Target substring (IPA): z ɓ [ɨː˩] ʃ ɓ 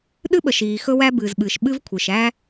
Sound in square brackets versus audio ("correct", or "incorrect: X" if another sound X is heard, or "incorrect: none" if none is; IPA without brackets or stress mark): correct